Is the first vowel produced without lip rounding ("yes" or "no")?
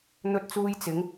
no